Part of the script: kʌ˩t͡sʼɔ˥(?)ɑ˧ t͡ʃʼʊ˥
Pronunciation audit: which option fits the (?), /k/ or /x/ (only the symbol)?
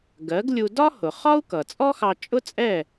x